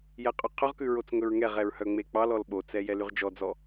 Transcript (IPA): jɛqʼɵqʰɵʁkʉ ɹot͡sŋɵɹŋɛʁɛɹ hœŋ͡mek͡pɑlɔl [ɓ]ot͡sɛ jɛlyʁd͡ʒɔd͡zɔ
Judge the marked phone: correct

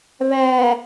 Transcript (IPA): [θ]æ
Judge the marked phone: incorrect: β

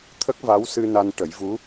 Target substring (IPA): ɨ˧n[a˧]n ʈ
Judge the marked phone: correct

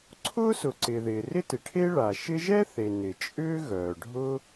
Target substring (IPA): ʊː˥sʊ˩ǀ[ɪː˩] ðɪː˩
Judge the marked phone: correct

